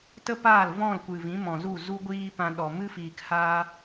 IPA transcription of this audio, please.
t ə˦ p aː˦˨ l v ɔ̃˦˨ l kʷ ɨ˨ v ĩ˨˦ m ɔ̃˨ z u˦˨ z u˦ ɡʷ iː˦ p ã˧ ɗ ɔ˨ m ɨ˦ f iː˨ k h aː˦

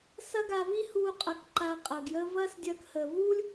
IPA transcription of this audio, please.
s ɐ˥ ɡ a˧ v i˥ h uː˧ qʼ ɐ˧ k ǃ aː˧ qʼ ɐː˩ ɡ j əː˥ v ɐː˥ s dʲ ɐː˧ k h əː˩ v uː˥ lʲ

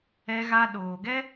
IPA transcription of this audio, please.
ɛ˧ ɣ a˧ ɗ oː˨ ɡ ɛ˦

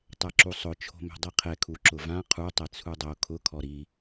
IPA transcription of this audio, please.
tˤ ɛ ǁ u sˤ ʊ t͡ʃʰ o̤ m ɛ̤ dˤ i qʰ ɛ kʰ u ǁ ʊ v ã qʰ u tˤ ɛ t͡sʰ u dˤ o kʰ ʊ kʰ ɔ ɾ i

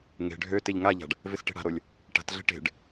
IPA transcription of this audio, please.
ŋ e̤ ɖʱ ø t e ʎ ŋ a ʎ a̤ ɖ | v ɪ s ʈ e̤ ɽ a̤ ɾ o lʲ | ʈ a̤ t ɮ e̤ ʈ e̤ ɖ

